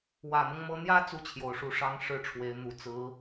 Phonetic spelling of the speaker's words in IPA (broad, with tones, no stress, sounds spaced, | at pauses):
w ä˨˩ n̪ ɤ˦ ŋ m ɤ˧˥ n̪ j ä˥ t͡s u˥ t͡ɕʰ j o˨˩ ʊ̯ ʂ u˧˥ ʂ ɑ˧˥ ŋ ʂ ɻ̩˥ ʈ͡ʂʰ w e˧˥ ɪ̯ n̪ u˨˩ t͡s ɹ̩˧˥